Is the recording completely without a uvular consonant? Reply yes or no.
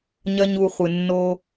no